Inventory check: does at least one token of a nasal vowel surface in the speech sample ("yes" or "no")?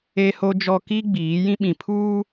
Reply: yes